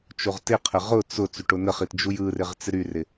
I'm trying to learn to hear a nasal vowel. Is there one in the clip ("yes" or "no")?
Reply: no